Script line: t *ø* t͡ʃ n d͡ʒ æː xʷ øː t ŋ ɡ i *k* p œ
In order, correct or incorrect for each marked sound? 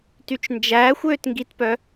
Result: incorrect: y, incorrect: t

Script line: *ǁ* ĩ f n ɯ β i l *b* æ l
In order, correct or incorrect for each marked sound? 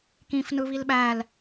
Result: incorrect: k, incorrect: ɓ

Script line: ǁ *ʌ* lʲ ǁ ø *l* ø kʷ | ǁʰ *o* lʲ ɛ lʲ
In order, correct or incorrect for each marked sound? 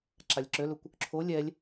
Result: incorrect: a, correct, correct

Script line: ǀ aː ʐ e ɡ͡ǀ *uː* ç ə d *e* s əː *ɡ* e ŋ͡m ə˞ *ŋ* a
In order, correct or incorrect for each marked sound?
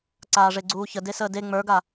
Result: correct, correct, incorrect: d, incorrect: ɡ

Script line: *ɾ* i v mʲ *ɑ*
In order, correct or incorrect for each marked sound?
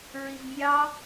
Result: incorrect: ɹ, correct

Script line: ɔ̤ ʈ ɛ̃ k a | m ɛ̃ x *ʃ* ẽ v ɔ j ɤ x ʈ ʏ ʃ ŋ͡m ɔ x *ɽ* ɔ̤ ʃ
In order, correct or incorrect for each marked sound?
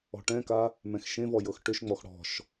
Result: correct, correct

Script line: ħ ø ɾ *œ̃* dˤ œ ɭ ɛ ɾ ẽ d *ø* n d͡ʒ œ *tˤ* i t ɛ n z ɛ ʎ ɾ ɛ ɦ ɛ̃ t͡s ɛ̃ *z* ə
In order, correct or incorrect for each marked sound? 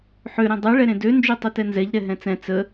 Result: correct, correct, correct, incorrect: t͡s

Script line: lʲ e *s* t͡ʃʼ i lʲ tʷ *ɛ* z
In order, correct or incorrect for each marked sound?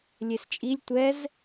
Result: correct, correct

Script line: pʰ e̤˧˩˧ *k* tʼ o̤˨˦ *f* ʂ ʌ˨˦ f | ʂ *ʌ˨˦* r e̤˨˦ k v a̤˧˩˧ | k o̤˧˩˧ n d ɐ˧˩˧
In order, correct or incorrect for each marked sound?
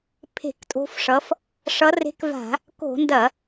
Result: correct, correct, correct

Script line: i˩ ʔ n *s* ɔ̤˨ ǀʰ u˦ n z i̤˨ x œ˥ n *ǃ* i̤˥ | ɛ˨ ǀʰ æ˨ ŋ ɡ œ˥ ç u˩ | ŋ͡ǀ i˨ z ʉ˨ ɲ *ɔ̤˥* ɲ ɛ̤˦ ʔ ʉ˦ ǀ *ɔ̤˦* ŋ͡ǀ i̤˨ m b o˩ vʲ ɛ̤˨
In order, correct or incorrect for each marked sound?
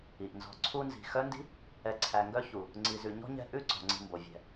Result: incorrect: z, incorrect: d, correct, incorrect: ɔ̤˩

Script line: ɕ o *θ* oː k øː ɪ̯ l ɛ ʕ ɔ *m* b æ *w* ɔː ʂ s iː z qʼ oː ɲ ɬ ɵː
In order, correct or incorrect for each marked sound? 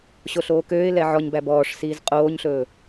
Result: incorrect: ɬ, incorrect: ɲ, incorrect: b

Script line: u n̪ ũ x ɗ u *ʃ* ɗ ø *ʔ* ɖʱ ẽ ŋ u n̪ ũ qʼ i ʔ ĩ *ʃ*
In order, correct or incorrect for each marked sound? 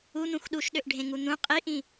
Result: correct, correct, incorrect: none

